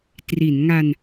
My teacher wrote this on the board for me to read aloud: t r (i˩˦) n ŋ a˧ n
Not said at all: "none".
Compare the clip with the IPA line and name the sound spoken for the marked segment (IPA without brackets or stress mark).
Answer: i˩˦